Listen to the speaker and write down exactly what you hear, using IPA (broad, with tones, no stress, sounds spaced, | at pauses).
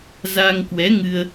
z a˧ ŋ k w ɛ˨˦ ŋ ɨ˧ ə̯